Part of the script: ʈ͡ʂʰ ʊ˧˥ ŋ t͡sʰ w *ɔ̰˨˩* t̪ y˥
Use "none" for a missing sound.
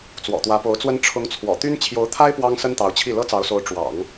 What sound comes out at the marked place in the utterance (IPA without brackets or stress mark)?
ɔ̰˨˩